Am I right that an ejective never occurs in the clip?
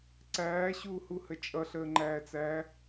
no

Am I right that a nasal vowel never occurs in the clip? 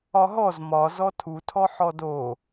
yes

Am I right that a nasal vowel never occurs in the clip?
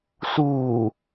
yes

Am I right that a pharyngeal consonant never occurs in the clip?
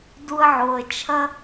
no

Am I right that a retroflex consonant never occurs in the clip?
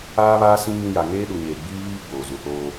yes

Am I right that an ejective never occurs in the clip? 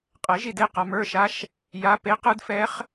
no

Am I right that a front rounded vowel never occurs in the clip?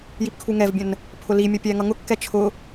yes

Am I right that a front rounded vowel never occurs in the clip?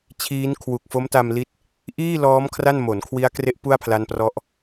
yes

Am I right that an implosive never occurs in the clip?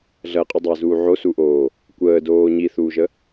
yes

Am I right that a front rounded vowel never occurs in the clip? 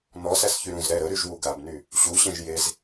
no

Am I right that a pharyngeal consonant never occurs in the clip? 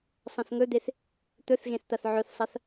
no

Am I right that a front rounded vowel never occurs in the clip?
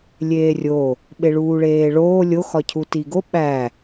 yes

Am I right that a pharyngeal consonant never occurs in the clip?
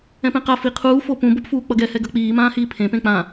yes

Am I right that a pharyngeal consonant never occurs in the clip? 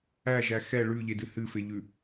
yes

